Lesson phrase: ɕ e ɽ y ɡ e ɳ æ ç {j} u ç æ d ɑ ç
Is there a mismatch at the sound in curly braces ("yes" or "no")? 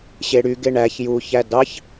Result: no